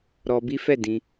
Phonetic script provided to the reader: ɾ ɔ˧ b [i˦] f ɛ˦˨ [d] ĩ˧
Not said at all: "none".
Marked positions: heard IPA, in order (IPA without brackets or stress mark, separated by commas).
i˦, d